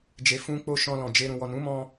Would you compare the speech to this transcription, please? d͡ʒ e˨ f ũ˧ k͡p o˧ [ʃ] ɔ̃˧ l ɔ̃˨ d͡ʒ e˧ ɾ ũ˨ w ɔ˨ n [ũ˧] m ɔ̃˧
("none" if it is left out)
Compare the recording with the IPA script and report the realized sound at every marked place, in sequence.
ʃ, ũ˨˦

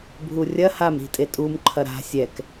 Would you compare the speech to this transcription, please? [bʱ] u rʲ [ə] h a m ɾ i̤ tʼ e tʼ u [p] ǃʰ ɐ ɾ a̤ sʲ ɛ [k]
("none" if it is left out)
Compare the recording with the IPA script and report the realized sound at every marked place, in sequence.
bʱ, ɐ, m, k

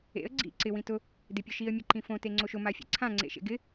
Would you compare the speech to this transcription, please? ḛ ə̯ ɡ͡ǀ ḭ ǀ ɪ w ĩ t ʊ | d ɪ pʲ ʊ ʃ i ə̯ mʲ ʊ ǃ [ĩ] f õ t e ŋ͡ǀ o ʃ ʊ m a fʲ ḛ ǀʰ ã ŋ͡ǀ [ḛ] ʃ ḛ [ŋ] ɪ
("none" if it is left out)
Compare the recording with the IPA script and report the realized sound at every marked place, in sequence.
ĩ, ḛ, ɡ

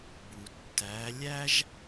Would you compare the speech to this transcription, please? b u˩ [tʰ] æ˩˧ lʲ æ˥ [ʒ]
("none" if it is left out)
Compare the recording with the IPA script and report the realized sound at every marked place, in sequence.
tː, ʒ

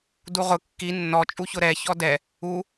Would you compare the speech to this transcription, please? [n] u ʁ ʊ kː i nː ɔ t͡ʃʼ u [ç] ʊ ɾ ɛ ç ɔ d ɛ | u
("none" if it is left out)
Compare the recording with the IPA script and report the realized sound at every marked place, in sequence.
d, ç

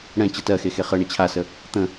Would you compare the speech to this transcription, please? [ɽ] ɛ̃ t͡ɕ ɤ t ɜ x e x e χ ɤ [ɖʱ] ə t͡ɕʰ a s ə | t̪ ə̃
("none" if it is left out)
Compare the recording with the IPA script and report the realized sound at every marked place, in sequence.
ɽ, ɳ

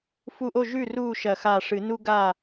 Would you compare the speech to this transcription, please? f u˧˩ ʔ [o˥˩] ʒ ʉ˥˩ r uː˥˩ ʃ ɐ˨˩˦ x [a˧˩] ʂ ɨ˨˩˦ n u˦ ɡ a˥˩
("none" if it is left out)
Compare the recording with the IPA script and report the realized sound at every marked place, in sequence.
o˥˩, a˧˩

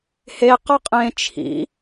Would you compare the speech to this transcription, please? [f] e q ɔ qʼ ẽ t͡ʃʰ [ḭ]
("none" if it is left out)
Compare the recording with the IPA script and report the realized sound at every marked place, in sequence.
h, ḭ

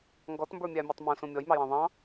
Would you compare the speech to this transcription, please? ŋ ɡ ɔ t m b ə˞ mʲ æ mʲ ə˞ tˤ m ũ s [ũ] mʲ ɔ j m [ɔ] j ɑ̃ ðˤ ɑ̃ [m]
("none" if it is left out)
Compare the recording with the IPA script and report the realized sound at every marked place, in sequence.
ũ, ɑ, none

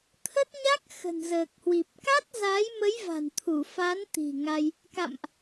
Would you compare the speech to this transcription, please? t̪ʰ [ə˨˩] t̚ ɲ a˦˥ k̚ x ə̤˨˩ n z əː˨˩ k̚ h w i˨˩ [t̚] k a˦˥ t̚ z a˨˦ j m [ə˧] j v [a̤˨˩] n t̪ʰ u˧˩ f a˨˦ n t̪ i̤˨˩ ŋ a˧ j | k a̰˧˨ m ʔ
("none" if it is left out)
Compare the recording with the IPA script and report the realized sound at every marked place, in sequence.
ə˦˥, p̚, ə˨˦, a̤˨˩

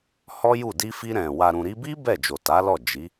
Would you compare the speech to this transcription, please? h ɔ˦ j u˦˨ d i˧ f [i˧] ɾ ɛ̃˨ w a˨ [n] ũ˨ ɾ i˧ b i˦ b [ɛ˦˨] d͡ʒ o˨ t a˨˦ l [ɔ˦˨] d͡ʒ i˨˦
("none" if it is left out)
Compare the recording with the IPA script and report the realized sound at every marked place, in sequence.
i˧, ɾ, ɛ˦˨, ɔ˦˨

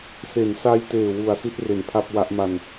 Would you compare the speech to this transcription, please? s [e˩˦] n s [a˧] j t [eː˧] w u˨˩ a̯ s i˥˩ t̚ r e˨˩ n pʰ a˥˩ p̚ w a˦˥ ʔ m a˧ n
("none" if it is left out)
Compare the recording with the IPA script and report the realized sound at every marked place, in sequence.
e˩˦, a˧, eː˨˩

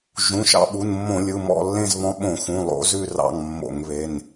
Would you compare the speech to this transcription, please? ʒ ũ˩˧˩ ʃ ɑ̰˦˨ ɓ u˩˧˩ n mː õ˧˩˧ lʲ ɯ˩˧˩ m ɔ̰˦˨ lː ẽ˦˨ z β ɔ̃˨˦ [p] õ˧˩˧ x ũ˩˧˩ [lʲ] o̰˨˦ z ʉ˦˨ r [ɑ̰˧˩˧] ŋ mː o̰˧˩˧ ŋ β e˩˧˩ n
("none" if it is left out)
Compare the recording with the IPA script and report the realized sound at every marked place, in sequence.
ɓ, lˠ, ɑ̰˦˨

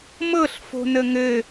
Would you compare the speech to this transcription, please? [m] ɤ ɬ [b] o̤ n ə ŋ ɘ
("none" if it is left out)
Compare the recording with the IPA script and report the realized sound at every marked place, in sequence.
m, f

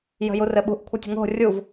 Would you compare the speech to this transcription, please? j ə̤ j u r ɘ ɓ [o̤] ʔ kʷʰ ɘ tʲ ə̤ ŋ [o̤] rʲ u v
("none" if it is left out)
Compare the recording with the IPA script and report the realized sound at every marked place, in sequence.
ṳ, o̤

